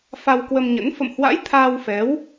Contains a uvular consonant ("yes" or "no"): no